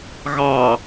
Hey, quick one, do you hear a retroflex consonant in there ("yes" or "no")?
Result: no